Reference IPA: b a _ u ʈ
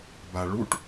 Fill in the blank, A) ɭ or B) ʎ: A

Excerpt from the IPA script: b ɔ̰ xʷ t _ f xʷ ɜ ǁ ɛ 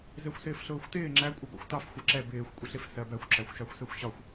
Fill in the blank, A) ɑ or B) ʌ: A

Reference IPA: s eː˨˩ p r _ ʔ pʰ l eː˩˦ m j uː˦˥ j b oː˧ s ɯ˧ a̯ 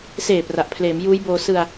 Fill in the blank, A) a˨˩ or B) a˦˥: A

